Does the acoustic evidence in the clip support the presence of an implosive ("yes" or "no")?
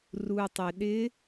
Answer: yes